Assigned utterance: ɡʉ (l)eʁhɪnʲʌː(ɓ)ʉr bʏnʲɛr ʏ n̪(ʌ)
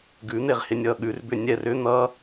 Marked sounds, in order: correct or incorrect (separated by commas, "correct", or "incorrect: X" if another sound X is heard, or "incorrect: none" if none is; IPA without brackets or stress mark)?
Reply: incorrect: n̪, incorrect: ɠ, correct